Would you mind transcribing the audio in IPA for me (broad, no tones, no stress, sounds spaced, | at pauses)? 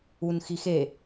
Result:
u n x i x e